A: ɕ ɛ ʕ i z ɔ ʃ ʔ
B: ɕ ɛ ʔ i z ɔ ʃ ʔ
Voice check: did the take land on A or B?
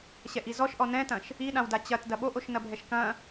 B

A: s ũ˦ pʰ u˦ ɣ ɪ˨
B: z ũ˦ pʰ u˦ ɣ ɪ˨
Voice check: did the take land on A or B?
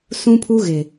A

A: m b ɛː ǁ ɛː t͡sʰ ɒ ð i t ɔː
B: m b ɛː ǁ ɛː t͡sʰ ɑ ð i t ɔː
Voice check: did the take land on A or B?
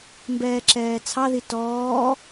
B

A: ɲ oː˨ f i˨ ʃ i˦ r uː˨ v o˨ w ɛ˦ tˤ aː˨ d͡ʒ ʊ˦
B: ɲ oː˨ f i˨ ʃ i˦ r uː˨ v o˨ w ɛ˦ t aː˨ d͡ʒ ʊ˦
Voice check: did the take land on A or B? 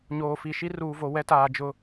B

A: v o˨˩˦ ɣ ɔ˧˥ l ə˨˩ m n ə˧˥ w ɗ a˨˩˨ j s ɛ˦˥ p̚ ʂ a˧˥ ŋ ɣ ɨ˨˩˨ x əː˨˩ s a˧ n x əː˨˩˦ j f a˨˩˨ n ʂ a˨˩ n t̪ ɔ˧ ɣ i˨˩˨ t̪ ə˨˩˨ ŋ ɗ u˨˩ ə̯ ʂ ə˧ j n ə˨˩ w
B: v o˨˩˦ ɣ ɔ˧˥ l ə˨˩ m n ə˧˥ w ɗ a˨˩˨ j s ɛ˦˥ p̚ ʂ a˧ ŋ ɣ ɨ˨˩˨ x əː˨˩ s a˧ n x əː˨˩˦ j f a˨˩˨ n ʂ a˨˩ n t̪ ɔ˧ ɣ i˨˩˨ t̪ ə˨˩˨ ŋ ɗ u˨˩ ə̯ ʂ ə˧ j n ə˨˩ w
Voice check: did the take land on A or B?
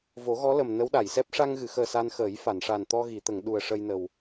B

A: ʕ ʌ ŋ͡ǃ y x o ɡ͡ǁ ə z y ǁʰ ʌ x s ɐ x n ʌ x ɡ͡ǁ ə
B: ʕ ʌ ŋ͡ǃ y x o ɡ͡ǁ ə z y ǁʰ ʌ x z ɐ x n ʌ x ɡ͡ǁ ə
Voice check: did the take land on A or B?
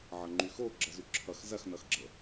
B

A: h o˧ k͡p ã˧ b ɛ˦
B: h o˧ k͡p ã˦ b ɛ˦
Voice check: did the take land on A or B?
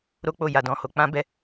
B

